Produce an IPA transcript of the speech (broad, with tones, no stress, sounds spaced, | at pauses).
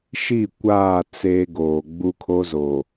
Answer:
ʃ i˦˨ kʷ aː˦˨ t͡s eː˦ ɡ oː˨ ɡ͡b u˦ kʰ o˦ z o˨